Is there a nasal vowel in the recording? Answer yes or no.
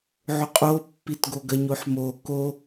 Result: no